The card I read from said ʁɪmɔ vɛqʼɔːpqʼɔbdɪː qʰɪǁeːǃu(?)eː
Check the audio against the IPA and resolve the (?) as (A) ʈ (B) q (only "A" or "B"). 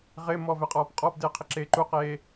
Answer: B